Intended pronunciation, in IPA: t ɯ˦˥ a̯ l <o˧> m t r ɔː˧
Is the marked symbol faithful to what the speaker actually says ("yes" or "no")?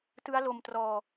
yes